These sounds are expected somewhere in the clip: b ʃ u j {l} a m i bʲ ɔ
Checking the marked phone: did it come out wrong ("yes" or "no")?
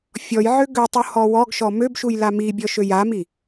no